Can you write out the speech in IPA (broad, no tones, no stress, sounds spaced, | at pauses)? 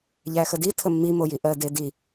ʎ æ x ə d i tʰ ə mː i m o j i ʔ ɜ d e d i